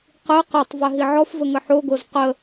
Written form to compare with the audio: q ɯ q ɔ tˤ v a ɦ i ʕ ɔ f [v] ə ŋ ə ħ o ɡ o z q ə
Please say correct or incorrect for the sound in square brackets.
correct